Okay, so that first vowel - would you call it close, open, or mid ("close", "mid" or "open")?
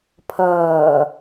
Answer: mid